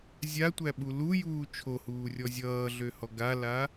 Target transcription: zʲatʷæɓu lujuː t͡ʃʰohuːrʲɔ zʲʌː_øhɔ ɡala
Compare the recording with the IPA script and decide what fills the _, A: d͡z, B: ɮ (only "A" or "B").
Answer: B